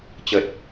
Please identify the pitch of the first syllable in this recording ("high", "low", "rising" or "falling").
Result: low